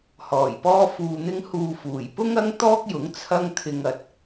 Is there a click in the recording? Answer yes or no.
no